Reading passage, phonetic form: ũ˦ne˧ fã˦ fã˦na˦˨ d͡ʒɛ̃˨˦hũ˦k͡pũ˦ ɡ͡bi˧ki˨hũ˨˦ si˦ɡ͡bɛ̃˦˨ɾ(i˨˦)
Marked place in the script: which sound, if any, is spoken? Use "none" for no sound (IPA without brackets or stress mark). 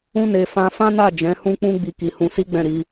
i˨˦